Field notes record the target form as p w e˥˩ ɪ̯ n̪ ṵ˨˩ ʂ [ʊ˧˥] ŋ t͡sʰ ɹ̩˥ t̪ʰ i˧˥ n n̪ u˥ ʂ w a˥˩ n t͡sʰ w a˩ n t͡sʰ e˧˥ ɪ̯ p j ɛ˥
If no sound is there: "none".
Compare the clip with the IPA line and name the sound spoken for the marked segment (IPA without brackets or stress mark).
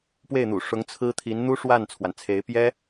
ʊ˧˥